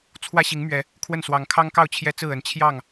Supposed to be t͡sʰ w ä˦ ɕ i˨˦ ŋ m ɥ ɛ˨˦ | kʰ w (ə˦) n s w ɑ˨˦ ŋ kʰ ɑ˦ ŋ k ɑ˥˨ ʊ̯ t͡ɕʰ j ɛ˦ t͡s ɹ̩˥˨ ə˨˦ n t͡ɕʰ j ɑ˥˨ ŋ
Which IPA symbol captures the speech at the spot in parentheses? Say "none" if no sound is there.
ə˥˨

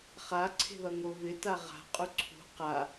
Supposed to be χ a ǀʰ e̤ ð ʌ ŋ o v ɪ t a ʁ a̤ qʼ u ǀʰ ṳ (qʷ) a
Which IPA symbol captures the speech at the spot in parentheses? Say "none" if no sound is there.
q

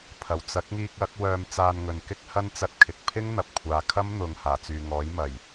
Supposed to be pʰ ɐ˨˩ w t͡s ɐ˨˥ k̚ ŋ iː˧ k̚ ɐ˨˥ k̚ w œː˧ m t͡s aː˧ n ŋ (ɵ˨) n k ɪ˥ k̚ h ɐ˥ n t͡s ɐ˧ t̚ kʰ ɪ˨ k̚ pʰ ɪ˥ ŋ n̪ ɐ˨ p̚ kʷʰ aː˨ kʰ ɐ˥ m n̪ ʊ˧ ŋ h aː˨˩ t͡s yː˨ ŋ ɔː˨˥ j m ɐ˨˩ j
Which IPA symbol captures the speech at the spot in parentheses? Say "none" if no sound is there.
ɵ˨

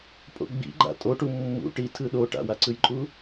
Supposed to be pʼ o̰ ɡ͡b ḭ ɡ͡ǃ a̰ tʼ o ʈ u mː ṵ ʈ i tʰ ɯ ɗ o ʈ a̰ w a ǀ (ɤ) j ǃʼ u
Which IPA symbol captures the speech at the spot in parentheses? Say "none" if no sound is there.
ɯ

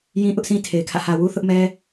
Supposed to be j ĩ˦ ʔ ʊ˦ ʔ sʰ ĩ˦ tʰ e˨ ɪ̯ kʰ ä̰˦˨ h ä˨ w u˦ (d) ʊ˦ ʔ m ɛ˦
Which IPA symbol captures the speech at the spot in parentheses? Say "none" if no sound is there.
θ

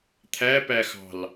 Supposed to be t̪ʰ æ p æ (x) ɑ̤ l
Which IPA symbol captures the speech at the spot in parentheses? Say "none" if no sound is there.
x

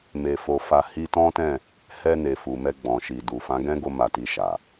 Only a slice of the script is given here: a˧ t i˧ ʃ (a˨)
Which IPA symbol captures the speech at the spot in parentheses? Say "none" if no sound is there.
a˨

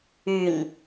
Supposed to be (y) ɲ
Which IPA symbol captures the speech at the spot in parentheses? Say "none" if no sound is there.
y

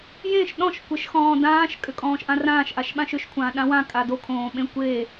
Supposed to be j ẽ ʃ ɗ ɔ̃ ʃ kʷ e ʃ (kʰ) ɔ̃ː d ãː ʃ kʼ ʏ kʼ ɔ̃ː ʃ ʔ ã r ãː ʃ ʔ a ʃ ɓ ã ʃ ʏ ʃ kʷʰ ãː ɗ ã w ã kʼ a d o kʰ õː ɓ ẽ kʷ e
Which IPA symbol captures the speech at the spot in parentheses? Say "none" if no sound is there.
x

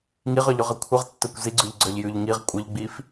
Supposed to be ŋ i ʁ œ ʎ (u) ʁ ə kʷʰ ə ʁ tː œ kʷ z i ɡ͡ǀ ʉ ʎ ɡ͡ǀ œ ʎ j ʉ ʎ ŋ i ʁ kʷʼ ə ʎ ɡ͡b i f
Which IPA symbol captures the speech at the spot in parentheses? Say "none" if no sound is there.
ʉ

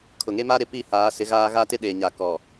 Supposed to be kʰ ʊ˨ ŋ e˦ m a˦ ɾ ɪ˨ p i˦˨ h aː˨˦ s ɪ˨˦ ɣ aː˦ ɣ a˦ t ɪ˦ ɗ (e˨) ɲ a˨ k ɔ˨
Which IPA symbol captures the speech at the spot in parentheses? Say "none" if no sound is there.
e˨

